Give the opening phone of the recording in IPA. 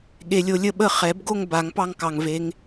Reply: ɠ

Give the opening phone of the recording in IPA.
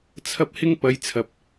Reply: t͡sʰ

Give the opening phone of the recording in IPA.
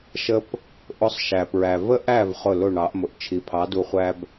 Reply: ʃ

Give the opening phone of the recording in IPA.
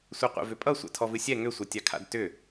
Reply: sʷ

